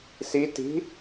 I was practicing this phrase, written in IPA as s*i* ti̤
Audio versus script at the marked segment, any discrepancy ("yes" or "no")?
no